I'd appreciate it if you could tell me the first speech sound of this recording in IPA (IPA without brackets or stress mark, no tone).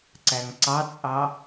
ǀ